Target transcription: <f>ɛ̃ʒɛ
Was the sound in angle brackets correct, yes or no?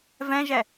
no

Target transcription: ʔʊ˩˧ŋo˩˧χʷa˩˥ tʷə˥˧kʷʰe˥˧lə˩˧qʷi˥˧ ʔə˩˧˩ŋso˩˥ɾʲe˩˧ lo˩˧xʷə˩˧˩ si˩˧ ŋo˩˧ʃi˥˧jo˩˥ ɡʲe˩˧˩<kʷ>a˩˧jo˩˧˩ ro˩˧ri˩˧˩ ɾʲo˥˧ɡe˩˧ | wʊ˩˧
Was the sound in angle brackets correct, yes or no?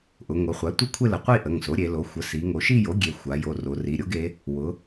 no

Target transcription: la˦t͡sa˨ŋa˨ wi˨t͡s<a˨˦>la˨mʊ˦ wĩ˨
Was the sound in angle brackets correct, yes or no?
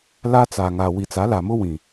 yes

